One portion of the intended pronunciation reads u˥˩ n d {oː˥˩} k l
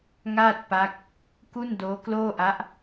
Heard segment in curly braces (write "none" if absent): oː˦˥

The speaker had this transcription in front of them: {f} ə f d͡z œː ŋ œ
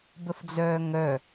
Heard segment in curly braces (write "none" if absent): b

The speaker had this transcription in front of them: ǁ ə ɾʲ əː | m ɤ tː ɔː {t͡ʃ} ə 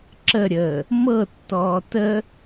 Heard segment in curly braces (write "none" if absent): t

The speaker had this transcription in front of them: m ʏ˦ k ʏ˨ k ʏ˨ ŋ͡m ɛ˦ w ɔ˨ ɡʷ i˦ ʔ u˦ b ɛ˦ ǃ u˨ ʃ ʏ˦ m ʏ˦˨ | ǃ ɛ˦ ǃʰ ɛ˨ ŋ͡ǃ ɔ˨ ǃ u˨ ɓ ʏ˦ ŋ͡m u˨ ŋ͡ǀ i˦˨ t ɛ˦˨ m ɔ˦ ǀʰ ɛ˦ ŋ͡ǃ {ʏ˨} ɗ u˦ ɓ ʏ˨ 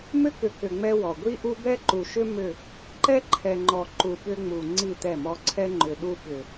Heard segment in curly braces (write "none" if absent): ʏ˨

